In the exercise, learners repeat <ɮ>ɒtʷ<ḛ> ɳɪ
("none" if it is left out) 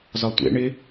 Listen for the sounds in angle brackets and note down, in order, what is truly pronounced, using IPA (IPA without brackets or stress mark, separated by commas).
z, ḛ